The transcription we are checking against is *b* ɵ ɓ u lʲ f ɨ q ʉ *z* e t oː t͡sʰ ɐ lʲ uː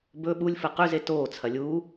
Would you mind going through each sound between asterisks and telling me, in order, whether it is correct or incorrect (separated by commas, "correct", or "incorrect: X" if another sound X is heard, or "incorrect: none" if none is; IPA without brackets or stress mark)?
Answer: correct, correct